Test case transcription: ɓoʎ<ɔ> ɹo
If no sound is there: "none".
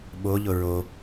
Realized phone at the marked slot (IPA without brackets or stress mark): ʊ